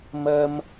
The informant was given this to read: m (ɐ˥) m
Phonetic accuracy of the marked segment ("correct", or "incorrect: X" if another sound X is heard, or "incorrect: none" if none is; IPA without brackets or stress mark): correct